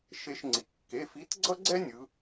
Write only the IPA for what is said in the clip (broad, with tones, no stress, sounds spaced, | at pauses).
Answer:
ʃ e˧ ʃ ŋ͡ǀ i˩˧ kː e˩˧˩ f i˨˥ t ɡ͡ǀ ʌ˥ ɡ͡ǀ ɛ˥ nʲ ɯ˩˧